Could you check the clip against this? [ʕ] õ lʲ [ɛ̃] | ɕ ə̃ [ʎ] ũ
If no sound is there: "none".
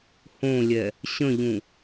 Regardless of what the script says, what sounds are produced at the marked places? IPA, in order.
h, ɛ, ʎ

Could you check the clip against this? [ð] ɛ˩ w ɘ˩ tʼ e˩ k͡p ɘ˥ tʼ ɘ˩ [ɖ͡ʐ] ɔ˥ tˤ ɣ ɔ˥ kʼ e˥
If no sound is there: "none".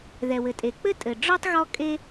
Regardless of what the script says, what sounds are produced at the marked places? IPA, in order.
ð, ɖ͡ʐ

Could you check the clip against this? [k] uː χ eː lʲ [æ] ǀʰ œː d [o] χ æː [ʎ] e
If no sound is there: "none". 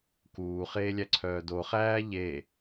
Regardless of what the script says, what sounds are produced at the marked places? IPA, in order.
k, æ, o, ʎ

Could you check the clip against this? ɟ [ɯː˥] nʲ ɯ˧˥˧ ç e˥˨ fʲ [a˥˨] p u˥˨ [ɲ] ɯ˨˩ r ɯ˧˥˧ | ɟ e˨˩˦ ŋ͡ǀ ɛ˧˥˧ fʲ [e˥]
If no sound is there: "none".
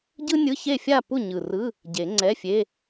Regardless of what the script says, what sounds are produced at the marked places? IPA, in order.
ɯ˥, a˥˨, ɲ, e˧˥˧

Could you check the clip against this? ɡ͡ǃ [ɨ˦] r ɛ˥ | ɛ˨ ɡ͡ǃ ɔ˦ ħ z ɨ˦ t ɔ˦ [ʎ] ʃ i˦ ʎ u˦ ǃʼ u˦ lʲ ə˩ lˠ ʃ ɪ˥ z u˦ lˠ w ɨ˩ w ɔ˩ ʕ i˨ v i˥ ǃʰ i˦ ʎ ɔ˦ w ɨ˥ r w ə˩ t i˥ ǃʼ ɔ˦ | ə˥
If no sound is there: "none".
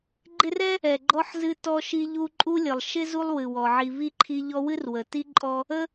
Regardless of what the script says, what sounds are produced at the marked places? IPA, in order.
ɪ˦, none

